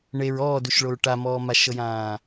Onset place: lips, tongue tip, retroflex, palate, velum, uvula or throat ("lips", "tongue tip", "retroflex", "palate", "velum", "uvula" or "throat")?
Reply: retroflex